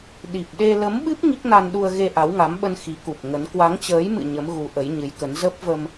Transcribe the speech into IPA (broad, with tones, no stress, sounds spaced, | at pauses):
ɗ i˨˩ p̚ ɗ e˧ l ə˨˦ m ɓ ɨ˦˥ p̚ ŋ i˦˥ k̚ n a˧ n ɗ u˧ ə̯ ɣ e˧ ʔ a˨˦ w ŋ a˨˦ m ɓ ə˧ n x i˨˦ k u˨˩ p̚ ŋ ə˨˦ n k w a˨˦ ŋ t͡ɕ əː˨˦ j m ɨ̰˧˨ ɲ ə˨˦ m ɣ u˨˦ ʔ ə˨˦ j ɲ ɨ˨˦ j k ə˨˦ n z ə˦˥ p̚ v ə˧ m